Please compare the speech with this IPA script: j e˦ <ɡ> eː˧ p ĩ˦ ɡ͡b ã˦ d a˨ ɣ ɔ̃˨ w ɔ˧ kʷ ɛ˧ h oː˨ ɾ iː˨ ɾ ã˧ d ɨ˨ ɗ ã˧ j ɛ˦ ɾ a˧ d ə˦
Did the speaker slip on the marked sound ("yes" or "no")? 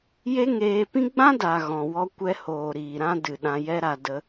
yes